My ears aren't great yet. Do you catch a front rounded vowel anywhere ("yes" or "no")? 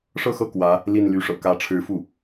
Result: yes